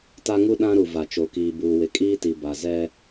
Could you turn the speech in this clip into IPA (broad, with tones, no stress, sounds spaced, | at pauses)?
t a˦ ŋ u˦ ɗ ã˦ ɾ u˨ v a˨ t͡ʃ o˨ k iː˨ b uː˨ w ɪ˨ kʼ iː˦ t i˨ b a˨ z ɛ˦